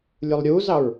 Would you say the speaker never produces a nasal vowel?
yes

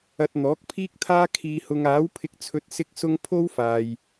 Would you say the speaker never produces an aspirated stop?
no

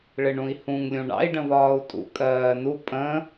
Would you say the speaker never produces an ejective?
no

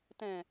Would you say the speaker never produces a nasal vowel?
no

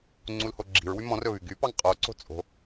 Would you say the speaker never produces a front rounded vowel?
no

